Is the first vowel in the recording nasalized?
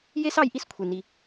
no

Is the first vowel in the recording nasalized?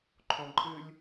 yes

